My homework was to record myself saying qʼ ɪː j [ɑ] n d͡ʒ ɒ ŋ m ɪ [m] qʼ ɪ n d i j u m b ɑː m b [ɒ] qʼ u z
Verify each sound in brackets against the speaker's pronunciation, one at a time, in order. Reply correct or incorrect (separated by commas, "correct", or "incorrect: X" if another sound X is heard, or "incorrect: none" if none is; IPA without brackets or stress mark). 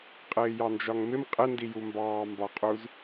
correct, correct, correct